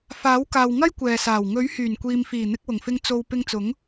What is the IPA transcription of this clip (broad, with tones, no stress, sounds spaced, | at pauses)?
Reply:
f aː˨˥ w k aː˨ w ŋ ɐ˥ j kʷ ɛː˨ s aː˨˩ w ŋ ɵ˨˥ ɥ h yː˨˩ n kʷ iː˨ m f iː˨˩ n̪ ɪ˧ k̚ w ʊ˨˩ ŋ f ɪ˧ ŋ t͡s o˨ w p ɪ˧ ŋ t͡s ʊ˨˥ ŋ